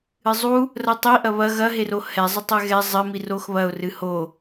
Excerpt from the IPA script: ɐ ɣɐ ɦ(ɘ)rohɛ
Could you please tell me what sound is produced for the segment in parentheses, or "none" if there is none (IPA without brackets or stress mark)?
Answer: e